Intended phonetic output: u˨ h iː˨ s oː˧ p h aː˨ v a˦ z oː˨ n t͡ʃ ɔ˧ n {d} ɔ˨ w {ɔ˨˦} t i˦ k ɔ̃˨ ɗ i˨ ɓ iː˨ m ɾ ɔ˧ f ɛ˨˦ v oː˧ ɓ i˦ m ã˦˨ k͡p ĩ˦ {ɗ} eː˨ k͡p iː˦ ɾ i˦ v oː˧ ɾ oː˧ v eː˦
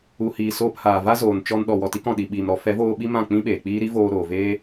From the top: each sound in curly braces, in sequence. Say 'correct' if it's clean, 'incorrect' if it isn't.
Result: incorrect, incorrect, incorrect

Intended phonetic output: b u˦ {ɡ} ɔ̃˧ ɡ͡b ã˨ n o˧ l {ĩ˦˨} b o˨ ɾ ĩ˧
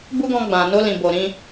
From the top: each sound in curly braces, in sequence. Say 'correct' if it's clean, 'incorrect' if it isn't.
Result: correct, incorrect

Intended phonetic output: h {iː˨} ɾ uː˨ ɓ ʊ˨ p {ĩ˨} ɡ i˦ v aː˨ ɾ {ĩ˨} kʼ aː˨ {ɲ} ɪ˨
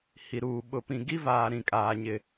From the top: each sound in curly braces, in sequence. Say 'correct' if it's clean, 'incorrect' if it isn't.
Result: incorrect, correct, correct, correct

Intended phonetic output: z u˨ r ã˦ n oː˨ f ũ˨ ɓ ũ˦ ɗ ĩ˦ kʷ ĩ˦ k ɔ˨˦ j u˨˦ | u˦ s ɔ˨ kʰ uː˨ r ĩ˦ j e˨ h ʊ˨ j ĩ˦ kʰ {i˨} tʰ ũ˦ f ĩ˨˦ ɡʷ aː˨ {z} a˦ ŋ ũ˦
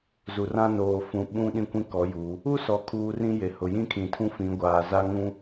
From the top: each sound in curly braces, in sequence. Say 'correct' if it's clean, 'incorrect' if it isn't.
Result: incorrect, correct

